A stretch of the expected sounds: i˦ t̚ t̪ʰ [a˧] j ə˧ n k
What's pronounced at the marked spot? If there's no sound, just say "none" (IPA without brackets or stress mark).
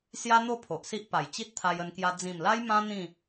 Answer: a˧